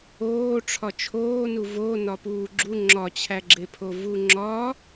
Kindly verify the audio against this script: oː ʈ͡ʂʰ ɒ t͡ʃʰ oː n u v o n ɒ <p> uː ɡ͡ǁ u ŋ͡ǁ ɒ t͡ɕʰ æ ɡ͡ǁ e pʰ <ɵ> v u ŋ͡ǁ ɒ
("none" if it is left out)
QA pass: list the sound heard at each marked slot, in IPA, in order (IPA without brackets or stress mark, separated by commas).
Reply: p, o